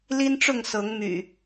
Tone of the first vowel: high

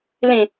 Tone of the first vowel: low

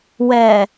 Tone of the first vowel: low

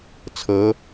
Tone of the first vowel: rising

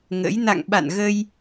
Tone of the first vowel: rising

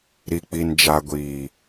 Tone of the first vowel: low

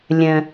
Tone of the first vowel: high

